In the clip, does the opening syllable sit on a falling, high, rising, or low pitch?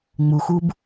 low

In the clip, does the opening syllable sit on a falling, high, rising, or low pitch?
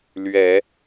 low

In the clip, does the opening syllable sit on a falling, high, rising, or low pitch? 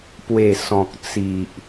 low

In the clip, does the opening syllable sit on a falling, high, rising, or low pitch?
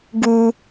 high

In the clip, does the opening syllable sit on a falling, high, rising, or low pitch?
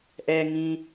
low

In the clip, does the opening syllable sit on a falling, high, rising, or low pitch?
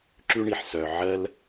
high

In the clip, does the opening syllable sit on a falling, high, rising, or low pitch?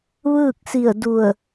falling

